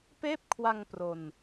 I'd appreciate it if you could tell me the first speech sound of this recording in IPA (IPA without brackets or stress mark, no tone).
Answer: p